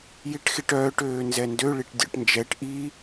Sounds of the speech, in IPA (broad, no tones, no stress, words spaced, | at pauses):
jiʈxiʈœːʈ øːnzɛndø ɭiʈdʲɔ̰ʈnd͡ʒɛʈ ʔi